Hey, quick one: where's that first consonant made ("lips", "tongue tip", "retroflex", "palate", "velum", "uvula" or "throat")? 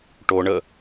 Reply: retroflex